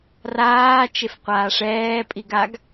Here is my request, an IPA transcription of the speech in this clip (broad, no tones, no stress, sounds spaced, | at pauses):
r aː t͡ʃ e f qʷ aː ʂ ɛː pʼ i ɡ a ɡ